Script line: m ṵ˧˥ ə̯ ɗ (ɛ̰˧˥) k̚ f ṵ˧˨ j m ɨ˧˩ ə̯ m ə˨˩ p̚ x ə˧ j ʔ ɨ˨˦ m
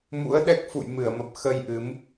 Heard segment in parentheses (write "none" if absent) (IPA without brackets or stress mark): ɛ˦˥